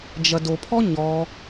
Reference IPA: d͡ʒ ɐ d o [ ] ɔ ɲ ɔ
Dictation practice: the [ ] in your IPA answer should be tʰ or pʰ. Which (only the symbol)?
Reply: pʰ